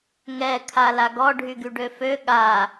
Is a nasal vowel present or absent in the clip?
absent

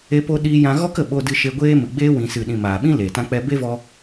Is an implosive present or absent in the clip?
present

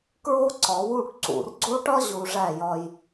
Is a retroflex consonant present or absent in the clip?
present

